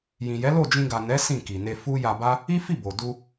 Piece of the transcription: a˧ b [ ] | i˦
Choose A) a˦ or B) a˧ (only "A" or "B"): A